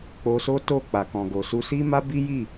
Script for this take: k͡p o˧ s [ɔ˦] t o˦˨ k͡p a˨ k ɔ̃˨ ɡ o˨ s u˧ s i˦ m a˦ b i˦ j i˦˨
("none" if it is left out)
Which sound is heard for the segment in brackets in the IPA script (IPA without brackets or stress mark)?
o˦